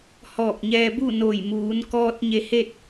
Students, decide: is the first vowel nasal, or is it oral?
oral